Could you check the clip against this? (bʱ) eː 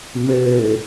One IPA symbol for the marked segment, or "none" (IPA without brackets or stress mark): m